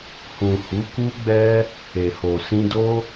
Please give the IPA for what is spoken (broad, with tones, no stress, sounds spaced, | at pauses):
h ũ˨ h u˨˦ k u˦ ɡ͡b ɛ˦ | e˨ h o˨ s ĩ˧ d o˦